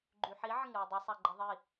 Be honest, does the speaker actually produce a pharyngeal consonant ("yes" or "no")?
yes